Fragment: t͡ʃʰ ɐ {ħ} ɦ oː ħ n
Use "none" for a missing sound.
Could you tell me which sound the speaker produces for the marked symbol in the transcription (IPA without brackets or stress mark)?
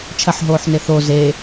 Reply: ħ